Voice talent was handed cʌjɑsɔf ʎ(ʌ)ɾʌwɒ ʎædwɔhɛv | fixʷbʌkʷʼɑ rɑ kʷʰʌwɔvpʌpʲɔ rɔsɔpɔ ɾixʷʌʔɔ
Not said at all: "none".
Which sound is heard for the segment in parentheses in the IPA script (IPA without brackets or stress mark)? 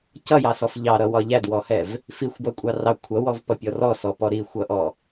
ɑ